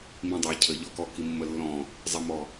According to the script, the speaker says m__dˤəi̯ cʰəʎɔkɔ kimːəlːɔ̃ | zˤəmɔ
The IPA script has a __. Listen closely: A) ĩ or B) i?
A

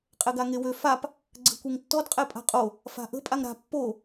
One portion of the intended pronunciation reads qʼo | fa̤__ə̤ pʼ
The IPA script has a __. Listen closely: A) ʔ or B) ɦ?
A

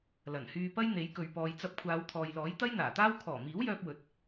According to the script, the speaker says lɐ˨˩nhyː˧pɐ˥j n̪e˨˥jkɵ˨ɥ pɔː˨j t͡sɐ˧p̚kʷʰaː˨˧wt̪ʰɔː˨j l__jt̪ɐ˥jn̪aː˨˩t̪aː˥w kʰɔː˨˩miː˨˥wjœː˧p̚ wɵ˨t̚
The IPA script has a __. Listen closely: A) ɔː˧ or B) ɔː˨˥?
B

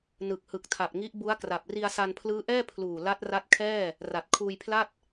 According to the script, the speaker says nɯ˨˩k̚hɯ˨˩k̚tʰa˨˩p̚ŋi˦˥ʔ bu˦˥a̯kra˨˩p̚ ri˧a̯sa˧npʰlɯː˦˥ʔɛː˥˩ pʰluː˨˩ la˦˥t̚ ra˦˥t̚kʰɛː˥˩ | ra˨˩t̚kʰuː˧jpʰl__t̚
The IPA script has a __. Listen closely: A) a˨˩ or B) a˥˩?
B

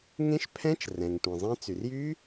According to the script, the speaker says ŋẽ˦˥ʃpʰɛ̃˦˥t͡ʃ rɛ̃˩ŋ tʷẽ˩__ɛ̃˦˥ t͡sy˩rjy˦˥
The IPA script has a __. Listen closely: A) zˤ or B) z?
A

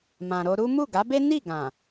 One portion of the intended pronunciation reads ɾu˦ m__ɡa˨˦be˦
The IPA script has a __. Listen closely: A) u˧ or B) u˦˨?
B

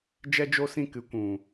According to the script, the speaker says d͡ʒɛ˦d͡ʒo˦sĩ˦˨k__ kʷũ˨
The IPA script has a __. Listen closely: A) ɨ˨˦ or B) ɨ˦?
A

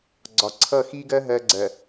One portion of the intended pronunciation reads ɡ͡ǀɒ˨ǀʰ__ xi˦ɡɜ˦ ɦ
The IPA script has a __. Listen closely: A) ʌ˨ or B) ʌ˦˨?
B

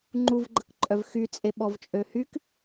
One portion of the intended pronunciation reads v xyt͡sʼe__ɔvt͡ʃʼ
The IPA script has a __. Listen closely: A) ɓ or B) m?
A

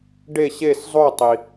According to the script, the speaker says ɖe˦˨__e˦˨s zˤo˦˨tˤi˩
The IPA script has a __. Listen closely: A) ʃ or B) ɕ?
B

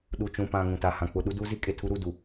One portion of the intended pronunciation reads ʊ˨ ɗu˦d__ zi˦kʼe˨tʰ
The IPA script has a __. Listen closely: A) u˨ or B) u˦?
B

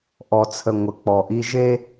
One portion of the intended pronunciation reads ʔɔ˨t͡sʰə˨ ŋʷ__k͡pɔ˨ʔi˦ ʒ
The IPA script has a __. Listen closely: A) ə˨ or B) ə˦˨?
A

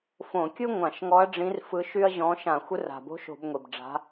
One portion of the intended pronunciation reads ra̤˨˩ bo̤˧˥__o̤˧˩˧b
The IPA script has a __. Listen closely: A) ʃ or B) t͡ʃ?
A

